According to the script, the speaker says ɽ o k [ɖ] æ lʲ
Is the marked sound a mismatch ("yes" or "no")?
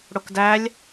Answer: yes